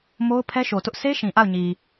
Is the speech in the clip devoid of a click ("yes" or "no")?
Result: yes